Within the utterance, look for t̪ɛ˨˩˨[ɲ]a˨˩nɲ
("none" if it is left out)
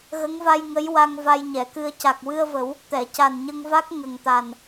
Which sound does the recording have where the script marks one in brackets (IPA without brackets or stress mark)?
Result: c